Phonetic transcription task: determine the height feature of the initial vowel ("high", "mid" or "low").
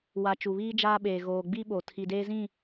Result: low